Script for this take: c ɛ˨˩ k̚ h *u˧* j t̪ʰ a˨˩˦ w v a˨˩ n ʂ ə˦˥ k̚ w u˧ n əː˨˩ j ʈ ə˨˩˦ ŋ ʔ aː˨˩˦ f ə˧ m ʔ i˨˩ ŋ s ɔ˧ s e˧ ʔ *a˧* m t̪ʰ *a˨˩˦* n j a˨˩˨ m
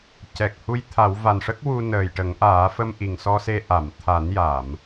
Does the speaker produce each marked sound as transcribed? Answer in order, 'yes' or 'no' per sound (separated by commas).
yes, no, yes